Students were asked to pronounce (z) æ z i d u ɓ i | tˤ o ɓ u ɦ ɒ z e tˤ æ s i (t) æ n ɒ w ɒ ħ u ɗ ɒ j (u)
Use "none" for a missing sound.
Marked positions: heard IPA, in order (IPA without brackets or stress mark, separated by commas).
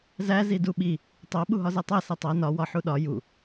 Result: z, tˤ, u